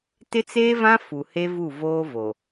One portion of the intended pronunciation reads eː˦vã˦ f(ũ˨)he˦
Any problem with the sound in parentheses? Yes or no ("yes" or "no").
yes